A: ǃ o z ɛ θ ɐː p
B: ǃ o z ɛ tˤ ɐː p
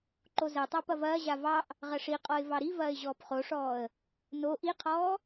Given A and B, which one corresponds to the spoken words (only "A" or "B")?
B